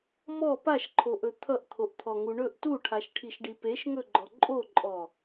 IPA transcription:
mɔ paʃǃʰoʔɵ t̪ʰʌʔt̪ʰoʔt̪ʰɔŋu ɳɵʔ tuʈʰaʃʈʰiʃɖi peʃŋɵɡ͡ǃɔ ǃʼoǃʼɔ

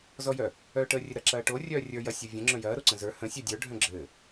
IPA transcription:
zɔjœ | œːʈəːrʲɘɾɐ ǁɐːʈo rʲœːrʲə˞ jɐ sʲɔvʲə̃ ŋ͡ǁœ̃jɐː ɾoǀə̃zə˞ hə̃ sʲœdʲə˞ ɖʱœ̃ɡ͡ǁɘː

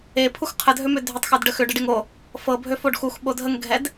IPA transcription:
epʰux qʰədʱømø dʱʏtˤxʏdɖə xʏɖəɖeŋ o | fɤbʱøfoɖ xuxɓo dʱəŋɡʱɛd

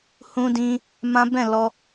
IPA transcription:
hũ˦dĩ˦ | mã˦ bɛ̃˦˨ lɔ˧

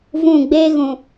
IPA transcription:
vũ˦˨ ɡ͡beː˦ɣũ˨

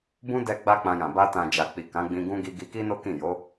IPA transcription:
bũ˦ dɛ˧ ɡ͡ba˦k͡pã˧jã˨ ba˧tã˨d͡ʒa˨k͡pi˨ kã˨˦ɡ͡bĩ˧ɡũ˦ ɡi˧ ɡi˧ki˦no˦kĩ˦˨ jo˨˦

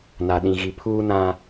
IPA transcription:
na˨ɗĩ˨ɣi˨ pʰuː˦nã˦

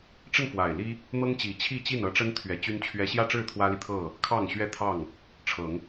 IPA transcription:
ʈ͡ʂə˥˨nfwa˨˩ɪ̯ li˦ | n̪ɤ˦ŋt͡ɕi˨˩t͡ɕʰi˥˨t͡ɕi˥˨n ɤ˦ʈ͡ʂə˦nt̪ʰɥɛ˨˦ t͡ɕy˦nt͡ɕʰɥɛ˦ ɕjä˥˨ʈ͡ʂɻ̩˥˨ t̪ʰwä˦li˨ t̪ʰɤ˥˨ | kʰɑ˥˨ŋɕɥɛ˥˨ t̪ʰɑ˥˨ŋ | ʈ͡ʂʰɤ˨˦ŋ

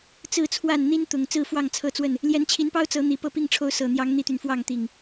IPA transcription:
t͡sɹ̩˥˨t͡sʰwa˥˨n n̪i˦nt̪ʊ˨˩ŋ t͡sɹ̩˥˨fwɑ˥˨ŋt͡sʰɤ˥˨t͡swə˥˨n | ljɛ˨˦nt͡ɕʰi˨˦npɑ˦ʊ̯ t͡sɤ˨˦n̪i˨˩ pɤ˥˨pi˥˨ŋʈ͡ʂʰo˦ʊ̯ sɤ˨˩n̪jɑ˨˦ŋ n̪i˦t̪y˨nfwɑ˥˨ŋt̪i˨˩ŋ

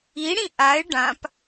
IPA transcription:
iɽĩ ʔaɪ̯ ɖãp

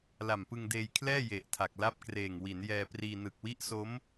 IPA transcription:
la˨˩mpɯ˧ŋdeː˧jkʰlɛː˥˩ je˨˩ʔtʰa˨˩k̚la˥˩p̚kreː˨˩ŋ wi˩˦njɛː˧priː˧ nɯ˨˩k̚wi˦˥ʔso˦˥m

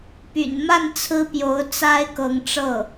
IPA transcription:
py̰˨˩n ma˥˩n t͡sʰɹ̩˥pjo˧˥ʊ̯ t͡sa˥ɪ̯kɤ˧˥ŋʈ͡ʂɤ˥˩

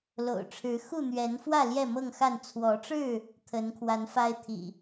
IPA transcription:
lo̰˨˩ʊ̯ʈ͡ʂʰɻ̩˨˦ xu˥˨n̪ɥɛ˨˦nfwä˥˨ ljɛ˥˨mɤ˥˨ŋxa˥˨n t͡sʰwɔ˨˦ʈ͡ʂɻ̩˥˨ | t̪ʰə˨˦nkʰwa˨˦nfa˦ɪ̯ t̪ʰḭ˨˩

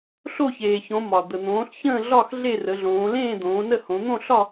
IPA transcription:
ɬo˥˨çeː˩çõ˩˧ mɒ˩ d̪ə˩n̪õː˩˧ɬ çə̃ː˥˨ ɮɒ˥˨x ɮe˥˨rə˩˧ɮõː˩˧ lẽː˥˨d̪õː˩˧nə˥˨hõ˩˧ n̪õ˥˨ɬɒ˥˨

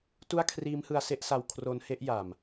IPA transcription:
tu˥˩a̯kʰriː˦˥mhɯ˧a̯ se˥˩ʔsa˧w kʰro˦˥nhe˦˥ʔja˨˩m

